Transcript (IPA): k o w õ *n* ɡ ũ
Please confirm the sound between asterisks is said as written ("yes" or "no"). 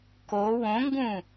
no